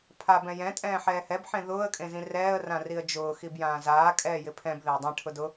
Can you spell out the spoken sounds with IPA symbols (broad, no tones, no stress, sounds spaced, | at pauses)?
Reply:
pʰ a b ɛ̃ j ɛ̃ tʼ ɛ̃ː ħ ɛː h ɛ b ħ ẽ ð ʊː ə̯ kʼ ẽ z ĩ r ɛː ə̯ r ã r i ə̯ d͡ʒ ʊː x i b j ãː z aː kʼ ɛː j ɪ pʰ ɛ̃ b ð e ə̯ dˤ ɛ̃ ʈʰ ʊ d ʊ